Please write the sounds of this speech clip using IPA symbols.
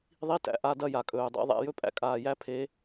ðˤi˧˥˧tæ̰˨˩ ʔa˧˥˧ dɐ˥˧ja˨˩kʼɵː˨˩ dˤæ̰˧˥˧ðˤæ̰˧˥˧jɵ˥˧pʼæ̰˥˧ kʼaː˨˩jæ˧˥ pʰe˧˥

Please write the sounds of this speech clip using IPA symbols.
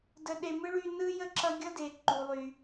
də˦ɗe˦ mɯ˥ɭy˦nɯ˥ jə˥ǁʌ˦ɡʲʌ˥de˨ ǃu˨lˠy˨

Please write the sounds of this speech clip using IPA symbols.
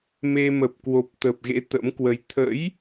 me˧ mə˨˩p̚kwo˨˩p̚t̪ə˨˩p̚ɣḛ˧˥ t̪ə̰˧˥mkwə˧j t̪ʰə̰˧˥j

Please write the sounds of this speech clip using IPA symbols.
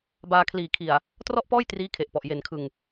baː˧kʰliː˨˩kʰi˨˩a̯ | trɔ˥˩ʔpɔː˥˩j triː˦˥kʰe˨˩ʔpɔ˨˩ʔ je˨˩nkʰɯ˨˩ŋ

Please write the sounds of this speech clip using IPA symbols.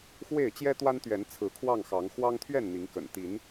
xwe˥˨ɪ̯ t͡ɕjɛ˦t̪wa˦nt̪ɥɛ˨˦n t͡sʰɹ̩˨˦kʰwɑ˥˨ŋxɑ˨˦ŋ xwɑ˦ŋt̪ʰɥɛ˥˨n n̪i˨˦ŋkə̰˨˩n t̪i˨˦n

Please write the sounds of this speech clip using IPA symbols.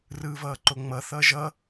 rɯːvʌːǃoŋ͡mʌ θʌːʒʌ

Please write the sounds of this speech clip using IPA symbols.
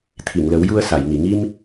t̪ʰi˨˩˨ŋ lə˨˩˦wju˧ə̯sa˨˩˨j ŋi˨˩˨ŋi˧m

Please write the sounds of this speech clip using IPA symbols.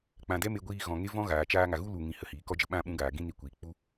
k͡pã˨dɛ˦me˧ ɡʷiː˧ɣɔ̃˨ ŋe˦vɔ̃˦ ɣaː˨t͡ʃaː˦ ŋa˨ɣu˦lu˨ŋĩ˨ hə˧hiː˨kɔ˦ d͡ʒə˧ ɓã˦˨ɓũ˧ɡaː˨ ɡĩ˦ni˧kʷiː˨ k͡pu˦

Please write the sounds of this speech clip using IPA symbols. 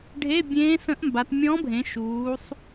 ɖʱe˧˥˧bʲẽː˧˥sə̃˧˥ʔmba˩˧t mʲɔ̃˧˥bʱẽ˩˧ʃuː˩˧sˤ

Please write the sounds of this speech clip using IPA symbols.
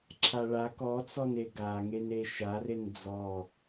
ǁʰaɭa kɔt͡sɔne ɡaŋene ʃaren d͡zɔ

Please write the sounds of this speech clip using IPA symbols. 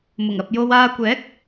mʊ˨˩ŋɐ˨p̚ jo˧waː˧ kʷɛː˨˥k̚

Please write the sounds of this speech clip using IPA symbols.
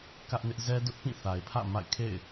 kä˦ʔnɪ˦ʔ zɛ˦dʊ˦ʔpĩ˦˨ θa˨ɪ̯ pʰä̰˦˨ ma̰˦˨ɪ̯ kʰḛ˦˨ɪ̯

